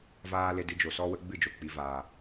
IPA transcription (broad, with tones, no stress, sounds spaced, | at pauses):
v aː˦ l e˧ d ɨ˧ d͡ʒ o˨ s ɔ˦ w ə˦ ɡ͡b ɨ˦˨ d͡ʒ o˨ k͡p i˨ v aː˨